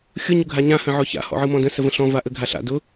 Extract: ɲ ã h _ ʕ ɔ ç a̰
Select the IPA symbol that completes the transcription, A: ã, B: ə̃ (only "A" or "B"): B